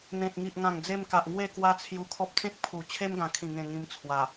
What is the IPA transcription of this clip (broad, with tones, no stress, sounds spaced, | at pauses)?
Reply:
n̪ ẽ˨ t̚ ŋ i˨ ʔ ŋ ã˨˩ ŋ d͡z e˧ m k a˨ ʔ ŋ w e˥˧ k w a˦ t͡sʰ j u˧ kʰ ɔ˦ p̚ t͡s ẽ˦ k̚ pʰ u˨˩ t͡ɕʰ e˦ m ɡ ã˨˩ kʰ ĩ˨˩ ŋ ẽ˨˩ ŋ ĩ˧ m t͡sʰ w a˨˩